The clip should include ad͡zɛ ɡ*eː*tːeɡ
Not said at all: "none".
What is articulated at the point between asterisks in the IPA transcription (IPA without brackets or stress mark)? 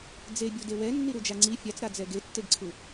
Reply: e